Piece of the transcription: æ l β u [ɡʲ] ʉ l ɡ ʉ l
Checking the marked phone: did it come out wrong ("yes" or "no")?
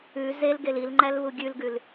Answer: no